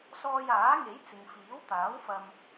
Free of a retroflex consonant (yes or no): yes